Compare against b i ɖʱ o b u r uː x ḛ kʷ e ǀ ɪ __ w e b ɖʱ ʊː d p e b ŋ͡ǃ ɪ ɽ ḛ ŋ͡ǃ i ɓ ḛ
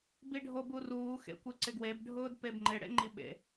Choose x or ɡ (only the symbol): ɡ